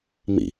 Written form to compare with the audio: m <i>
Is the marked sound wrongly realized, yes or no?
yes